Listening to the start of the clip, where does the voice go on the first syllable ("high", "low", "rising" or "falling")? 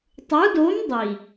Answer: rising